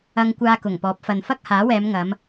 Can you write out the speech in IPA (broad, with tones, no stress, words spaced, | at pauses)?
ɐ˧ŋkʷaː˧ kʊ˨˩ŋpɔː˨˥p̚ fɐ˨n fɐ˥k̚haː˨˥wɛː˨˧mŋɐ˨˧m